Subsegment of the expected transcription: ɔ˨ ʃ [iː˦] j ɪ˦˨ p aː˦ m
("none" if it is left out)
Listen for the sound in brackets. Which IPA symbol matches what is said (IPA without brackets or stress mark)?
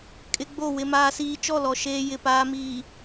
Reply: eː˦